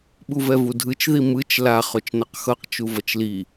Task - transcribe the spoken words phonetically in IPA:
ɓ u v ɛ v u dʱ ɯ t͡ʃ ð i m ɯ t͡ʃ l a χ o t͡ʃ n ʌ q x ʌ q t͡ʃ u v ʌ t͡ʃ l i

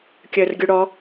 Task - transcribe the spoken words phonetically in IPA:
kʲ əː r ɡʲ u ɽ ɔ

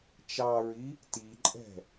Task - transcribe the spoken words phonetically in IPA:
t͡ʃ ɑ ɹ i | t i ǃʼ ɛ̤

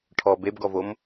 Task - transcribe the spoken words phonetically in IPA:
ʈʰ ɔ b e b ɡ ɔ v o m

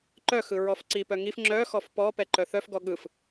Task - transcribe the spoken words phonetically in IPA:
ǃ œ x ɯ ɹ ɔ f ǀ i p œ ŋ i f ŋ͡ǁ œ x ɔ f p ɔ p ɛ ǃ œ θ œ f ɡ ɔ ɠ ɯ f

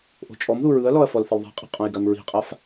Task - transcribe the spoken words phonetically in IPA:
ʔ o̤ t͡ʃʼ ɔ m ð u ɹ ɯ ɐ̯ l ɔ ɐ̯ f ɔ l θ ɪ l ðˤ i̤ qʼ i̤ qʼ õ j ɡ a m ɹ i̤ qʼ a f

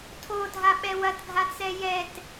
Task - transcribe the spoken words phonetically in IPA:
tʰ o dʱ a ɓ ɛ w ɐ t ɡʱ a t͡s ɛ j ɛ t

